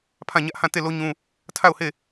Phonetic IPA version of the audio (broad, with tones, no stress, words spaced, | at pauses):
pʰã˦˨ ɲä˦ʔhã˦˨te˦˨ lo˦ɲũ˦ | tʰa˦˨ʊ̯he˦˨